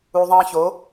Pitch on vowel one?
low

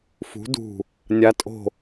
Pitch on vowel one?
rising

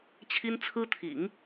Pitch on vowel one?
high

